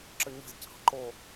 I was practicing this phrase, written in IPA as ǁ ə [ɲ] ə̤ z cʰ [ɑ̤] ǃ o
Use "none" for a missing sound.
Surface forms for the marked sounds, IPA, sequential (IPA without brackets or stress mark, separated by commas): ɲ, ɑ̤